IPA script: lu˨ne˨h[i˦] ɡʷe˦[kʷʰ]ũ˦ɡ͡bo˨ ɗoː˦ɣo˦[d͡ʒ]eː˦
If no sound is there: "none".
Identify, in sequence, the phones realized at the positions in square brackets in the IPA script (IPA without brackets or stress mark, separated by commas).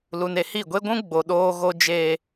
i˦˨, ɡʷ, d͡ʒ